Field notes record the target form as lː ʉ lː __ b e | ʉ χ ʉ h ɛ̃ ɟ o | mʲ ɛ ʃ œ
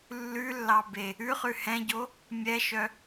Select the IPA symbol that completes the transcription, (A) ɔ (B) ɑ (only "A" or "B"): B